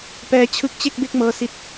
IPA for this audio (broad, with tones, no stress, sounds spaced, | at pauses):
p ɛː˦˥ t͡ɕʰ ɯ˦˥ k̚ t͡ɕ e˥˩ k̚ b e˥˩ k̚ m ɤː˦˥ s i˦˥ t̚